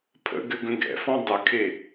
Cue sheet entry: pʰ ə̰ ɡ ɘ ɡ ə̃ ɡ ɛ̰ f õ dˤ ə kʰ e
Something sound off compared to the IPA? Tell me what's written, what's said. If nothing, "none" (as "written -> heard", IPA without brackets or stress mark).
õ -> ɔ̃